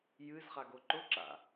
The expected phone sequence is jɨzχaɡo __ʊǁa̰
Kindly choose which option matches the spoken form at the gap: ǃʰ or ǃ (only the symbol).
ǃ